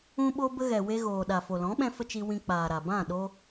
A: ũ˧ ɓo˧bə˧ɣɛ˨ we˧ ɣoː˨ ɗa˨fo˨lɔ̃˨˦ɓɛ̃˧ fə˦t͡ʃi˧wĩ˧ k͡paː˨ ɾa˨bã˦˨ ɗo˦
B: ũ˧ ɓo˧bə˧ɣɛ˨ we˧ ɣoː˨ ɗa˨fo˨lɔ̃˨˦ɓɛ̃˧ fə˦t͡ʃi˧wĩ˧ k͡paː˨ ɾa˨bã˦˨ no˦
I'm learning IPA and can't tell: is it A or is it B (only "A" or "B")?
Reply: A